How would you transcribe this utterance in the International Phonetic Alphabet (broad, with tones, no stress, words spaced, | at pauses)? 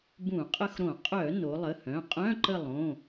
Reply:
bũ˧˩˧qʼə˦˨xɾõ˧˩˧ qʼœ˧˩˧ no˩˧lˠə˩˧˩hœ̃˩˧˩ qʼœ̃˧˥˧ǃə˦˨lˠõ˩˧˩